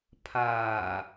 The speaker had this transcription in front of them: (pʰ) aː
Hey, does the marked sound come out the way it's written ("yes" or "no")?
yes